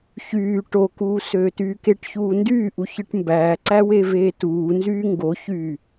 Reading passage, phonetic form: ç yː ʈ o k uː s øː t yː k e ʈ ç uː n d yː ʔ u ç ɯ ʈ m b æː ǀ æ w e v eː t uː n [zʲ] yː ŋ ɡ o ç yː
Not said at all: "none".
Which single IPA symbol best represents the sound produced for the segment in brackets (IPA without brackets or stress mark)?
z